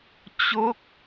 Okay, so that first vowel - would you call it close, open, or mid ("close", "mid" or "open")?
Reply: mid